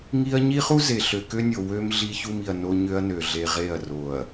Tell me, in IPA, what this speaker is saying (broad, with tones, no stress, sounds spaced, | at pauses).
ŋ i˦ ɐ̯ ɲ i˦ χ u˦ z e˨ ɬ ø˨ k ø˦ nʲ o˨ w ø˦ m ɮ i˦ ç u˦ m i˨ ɐ̯ n o˦ ɲ ø˦ ɐ̯ n ø˨ ɮ e˨ ʁ e˦˨ ɐ̯ r o˨ ɐ̯